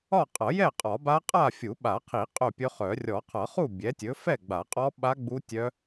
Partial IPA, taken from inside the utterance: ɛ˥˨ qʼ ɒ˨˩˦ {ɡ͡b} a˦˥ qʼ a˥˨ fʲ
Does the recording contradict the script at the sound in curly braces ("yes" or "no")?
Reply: yes